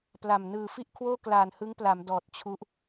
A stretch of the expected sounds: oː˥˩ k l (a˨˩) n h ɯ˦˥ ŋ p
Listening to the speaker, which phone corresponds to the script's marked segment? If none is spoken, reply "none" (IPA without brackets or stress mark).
aː˨˩